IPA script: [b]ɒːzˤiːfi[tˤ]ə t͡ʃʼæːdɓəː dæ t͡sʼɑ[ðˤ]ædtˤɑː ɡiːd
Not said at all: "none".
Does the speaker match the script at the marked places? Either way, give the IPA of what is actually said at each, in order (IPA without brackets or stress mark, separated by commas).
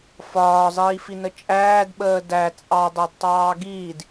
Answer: f, n, dˤ